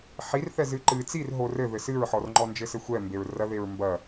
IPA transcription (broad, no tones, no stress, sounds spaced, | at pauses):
ħ i r θ ɛ z ɨ ǃ ɨ t͡s i r ɦ o r ɘ ð ɘ s ɨ ɹ ħ ɔ r ŋ͡ǃ ɔ n d͡ʒ ɘ s ɘ xʷ ɛ m b e ɹ r ɐ ð e ɹ m b ɐ